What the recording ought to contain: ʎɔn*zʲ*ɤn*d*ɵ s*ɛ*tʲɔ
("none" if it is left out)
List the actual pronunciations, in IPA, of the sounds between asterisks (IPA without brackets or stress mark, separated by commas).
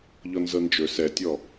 z, d͡ʒ, ɛ